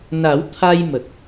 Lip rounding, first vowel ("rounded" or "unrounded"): unrounded